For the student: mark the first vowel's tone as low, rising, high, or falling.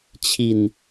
low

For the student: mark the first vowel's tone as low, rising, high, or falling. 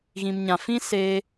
low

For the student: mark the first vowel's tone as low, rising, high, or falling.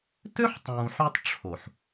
high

